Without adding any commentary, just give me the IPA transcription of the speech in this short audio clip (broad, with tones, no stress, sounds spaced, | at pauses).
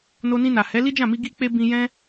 n o˧ n ĩ˧ n a˨ h ɛ˨˦ l i˦ d͡ʒ ã˦˨ m i˧ ɡ i˧ k͡p e˧ b ĩ˧ j ɛ̃˦